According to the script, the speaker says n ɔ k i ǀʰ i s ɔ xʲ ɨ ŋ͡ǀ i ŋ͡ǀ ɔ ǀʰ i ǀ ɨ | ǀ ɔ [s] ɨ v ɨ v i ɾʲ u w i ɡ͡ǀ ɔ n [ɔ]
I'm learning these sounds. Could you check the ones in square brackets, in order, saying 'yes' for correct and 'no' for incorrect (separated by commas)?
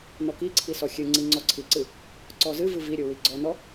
no, yes